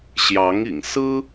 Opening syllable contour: rising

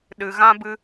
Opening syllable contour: low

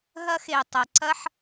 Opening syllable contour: high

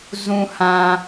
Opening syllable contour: low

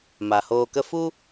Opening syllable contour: low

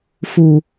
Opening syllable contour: low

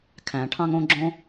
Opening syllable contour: low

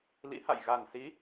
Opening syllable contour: rising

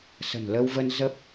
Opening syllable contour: low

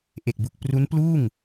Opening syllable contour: low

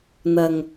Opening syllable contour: low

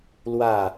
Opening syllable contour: falling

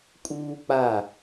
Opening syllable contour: high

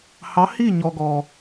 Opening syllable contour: rising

